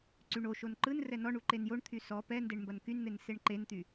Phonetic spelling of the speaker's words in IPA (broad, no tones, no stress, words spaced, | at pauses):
ǀyɳoʃon ǃɯn rɛnɔɳu ǃenjoɳt̪ʰy sɔ pɛndeɳ mbɐnkynn̪en seɳǃent̪y